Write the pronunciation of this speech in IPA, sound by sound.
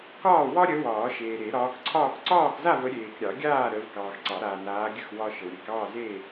k ɒː˥˨ w ɒ˦ ɾʲ ə˨˦ w ɒː˨˩˦ ʃ eː˨ ɾ e˨˩˦ ɾ ɒː˨˦ k ǀʰ ɒː˥˨ k ǀ ɒː˥˨ k z a˥˨ v ə˨˦ ɾʲ eː˨ k ɾʲ ɑ˨˩˦ ɡʲ aː˥˨ ɾ əː˨˦ v k ɑː˨ x ǀ ɑ˨˩˦ ɾ aː˨ n aː˨˦ ɡʲ ə˥˨ x w ɒ˦ ʃ ə˨ w ɾʲ e˨˦ k ɑː˥˨ z eː˥˨

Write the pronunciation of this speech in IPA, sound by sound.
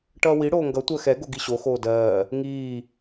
ʈ ʌː w i ɽ oː ŋ ɡ ʌ tʷ ɜ x ɛ ɡ o ɡ i ɕ o x oː d ɜː | ŋ iː

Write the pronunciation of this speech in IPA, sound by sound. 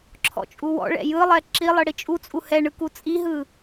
ǁʰ ɔ̰ t͡ʃʼ u w ɔ̰ ɭ ɛ̰ j ɯ lˠ ɛ ǁ i lˠ ɯ ɽ i t͡ʃʼ u t͡sʼ u h ɛ ɳ ɯ k u t͡sʼ i ɦ ɯ

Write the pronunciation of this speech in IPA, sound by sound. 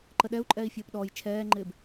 ǃ ə ɗ ɛ u̯ ǃʼ ɛː i̯ fʲ əː p ɗ ɔ j t͡ʃʰ ɛː ŋ͡ǃ ɪː b

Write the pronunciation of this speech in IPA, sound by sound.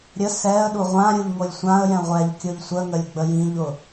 ɾʲ ə s ɛ ə̯ ɗ u ʁʷ ã ɾʲ u ʎ ŋ o lʲ sʷ ã ə̯ j ɛ̃ ʁʷ ɛ ʎ kʲ ʊ ʎ sʷ ə ŋ ə lʲ ɡ͡b ə j ĩ ʎ ʊ

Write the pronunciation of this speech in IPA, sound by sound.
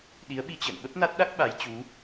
ɗ i˨˦ ə̯ ɓ i˧ t͡ɕ ə̰ː˧˨ n ɓ ə˦˥ p̚ n a˦˥ t̚ ɗ a˦˥ k̚ ɓ a˨˦ j t͡ɕ u˨˦

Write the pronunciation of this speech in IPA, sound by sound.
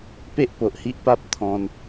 p e˦ ʔ p o˨ ʔ h i˦ ʔ p a˦ p̚ t̪ʰ ɔ̃˧ n

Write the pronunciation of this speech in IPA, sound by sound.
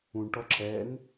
ũ ɳ ʈ ɔ ǁ ɛ n

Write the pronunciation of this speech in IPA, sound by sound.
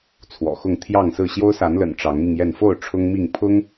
t͡sʰ w ɔ̰˨˩ x ʊ˥˨ ŋ t̪ʰ j ɑ˥˨ ŋ s ɹ̩˥˨ ɕ j o˦ ʊ̯ s a˨˦ n l ə̰˨˩ n ʈ͡ʂ ɑ˨˦ ŋ m i˧ ŋ j ɛ˥˨ n f o˥˨ ʊ̯ ʈ͡ʂʰ ʊ˦ ŋ m i˥˨ ŋ pʰ ʊ˦ ŋ

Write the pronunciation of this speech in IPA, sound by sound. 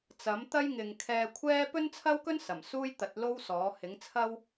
t͡s ɐ˨˥ m t̪ ɐ˥ j ŋ ɪ˨ ŋ kʰ ɛː˧ kʷʰ ɛː˥ p ɵ˥ n t͡sʰ ɐ˥ w k ɵ˥ n s ɐ˨˩ m s uː˥ j t̪ ɐ˨˥ t̚ l o˥ w s ɔː˨˥ h ɪ˨˥ ŋ t͡sʰ ɐ˥ w

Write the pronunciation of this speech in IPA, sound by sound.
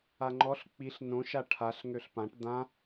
a ŋ͡ǃ ɔ ɬ k͡p i ɬ n õ ʃ a ʈʰ a ɬ ŋ ø ɬ p ã ʈ d̪ ã

